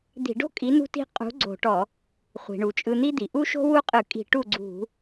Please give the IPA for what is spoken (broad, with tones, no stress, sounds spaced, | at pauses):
d̪ i̤˧˩˧ ɖ o̤˥ kʼ i˨˥ n ṳ˥ t i̤˥ qʼ ṳ˨˥ ɡ͡ǀ o̤˧˩˧ ʈ ɔ˧˩˧ | χʷ i̤˩ ɳ u˩ t͡ʃʼ ɯ˧ n̪ i˥ d̪ i˩ ʔ u˥ ʃ o̤˥ w u˥ qʼ ɯ˧˩˧ kʼ i̤˧˩˧ ʈ u˥˩ ɡ͡ǀ ṳ˧˩˧